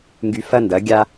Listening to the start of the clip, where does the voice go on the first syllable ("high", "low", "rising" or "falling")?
low